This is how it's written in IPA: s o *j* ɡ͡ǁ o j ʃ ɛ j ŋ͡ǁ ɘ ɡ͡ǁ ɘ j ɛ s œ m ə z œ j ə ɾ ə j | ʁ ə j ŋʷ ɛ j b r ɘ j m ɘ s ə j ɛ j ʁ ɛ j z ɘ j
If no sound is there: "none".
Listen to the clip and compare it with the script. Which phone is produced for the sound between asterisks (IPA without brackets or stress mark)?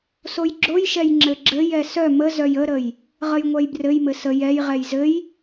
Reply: j